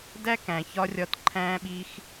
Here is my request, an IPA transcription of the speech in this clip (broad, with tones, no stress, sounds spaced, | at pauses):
d æ˦ k æ̃˨ ç ɒ˧ rʲ ɒ˧ t ǃʰ æ̃˧ ɓ i˧ x